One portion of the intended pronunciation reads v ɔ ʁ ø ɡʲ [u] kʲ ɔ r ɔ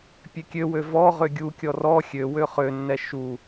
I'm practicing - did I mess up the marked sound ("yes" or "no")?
no